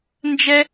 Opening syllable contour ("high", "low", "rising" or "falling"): high